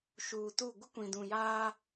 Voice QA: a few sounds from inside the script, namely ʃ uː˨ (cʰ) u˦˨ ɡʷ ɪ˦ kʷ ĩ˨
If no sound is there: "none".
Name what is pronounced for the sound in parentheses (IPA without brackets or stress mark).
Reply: t